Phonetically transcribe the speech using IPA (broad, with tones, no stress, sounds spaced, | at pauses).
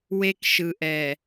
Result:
w e˦ k ʃ ɯ˨ ʔ ɛ˨